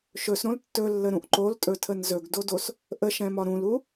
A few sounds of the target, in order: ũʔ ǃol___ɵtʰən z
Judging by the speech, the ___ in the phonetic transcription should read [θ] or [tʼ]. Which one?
tʼ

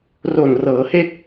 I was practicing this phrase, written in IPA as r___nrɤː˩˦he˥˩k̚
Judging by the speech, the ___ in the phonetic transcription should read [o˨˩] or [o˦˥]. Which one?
o˨˩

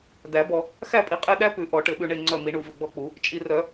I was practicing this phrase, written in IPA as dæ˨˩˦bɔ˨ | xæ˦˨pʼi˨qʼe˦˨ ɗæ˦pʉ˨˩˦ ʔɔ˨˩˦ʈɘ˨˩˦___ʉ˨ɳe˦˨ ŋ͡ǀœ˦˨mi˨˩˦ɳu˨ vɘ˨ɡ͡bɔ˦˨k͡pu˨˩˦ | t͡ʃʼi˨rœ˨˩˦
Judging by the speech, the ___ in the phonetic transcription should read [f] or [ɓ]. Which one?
ɓ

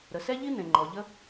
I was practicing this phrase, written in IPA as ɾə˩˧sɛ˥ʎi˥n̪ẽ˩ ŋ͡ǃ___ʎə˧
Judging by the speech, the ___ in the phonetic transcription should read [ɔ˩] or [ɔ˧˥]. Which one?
ɔ˩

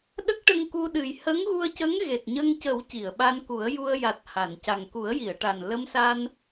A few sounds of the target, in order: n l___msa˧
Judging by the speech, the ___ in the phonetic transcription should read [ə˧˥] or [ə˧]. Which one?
ə˧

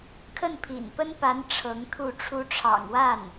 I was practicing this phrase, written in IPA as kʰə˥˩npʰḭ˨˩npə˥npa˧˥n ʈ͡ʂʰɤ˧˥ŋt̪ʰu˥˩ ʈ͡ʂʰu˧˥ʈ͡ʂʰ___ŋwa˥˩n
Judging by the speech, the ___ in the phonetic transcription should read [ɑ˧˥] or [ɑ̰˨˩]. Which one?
ɑ̰˨˩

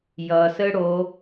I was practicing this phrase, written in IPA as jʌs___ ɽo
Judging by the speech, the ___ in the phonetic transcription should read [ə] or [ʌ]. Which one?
ə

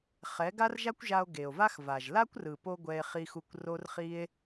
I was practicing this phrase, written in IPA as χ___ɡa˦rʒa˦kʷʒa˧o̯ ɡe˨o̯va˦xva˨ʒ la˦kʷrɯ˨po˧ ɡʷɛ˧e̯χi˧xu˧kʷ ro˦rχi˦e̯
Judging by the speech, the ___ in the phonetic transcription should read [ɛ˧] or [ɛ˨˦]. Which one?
ɛ˨˦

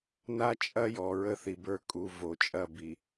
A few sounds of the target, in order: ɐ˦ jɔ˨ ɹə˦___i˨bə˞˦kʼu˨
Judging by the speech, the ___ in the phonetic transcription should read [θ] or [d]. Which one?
θ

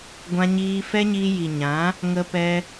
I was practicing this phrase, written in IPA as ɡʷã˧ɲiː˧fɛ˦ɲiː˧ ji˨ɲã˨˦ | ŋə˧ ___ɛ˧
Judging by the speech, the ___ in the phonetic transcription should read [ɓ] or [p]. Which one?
p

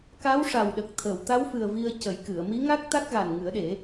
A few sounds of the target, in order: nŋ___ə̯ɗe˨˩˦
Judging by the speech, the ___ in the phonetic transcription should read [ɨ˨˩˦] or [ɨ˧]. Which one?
ɨ˨˩˦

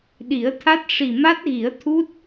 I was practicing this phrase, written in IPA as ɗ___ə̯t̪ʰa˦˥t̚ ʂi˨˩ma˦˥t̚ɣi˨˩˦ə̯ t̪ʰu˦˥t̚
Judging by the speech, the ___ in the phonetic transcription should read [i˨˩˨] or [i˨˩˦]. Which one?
i˨˩˦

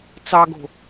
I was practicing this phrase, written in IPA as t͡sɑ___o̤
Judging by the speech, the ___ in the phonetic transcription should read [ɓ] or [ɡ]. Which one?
ɡ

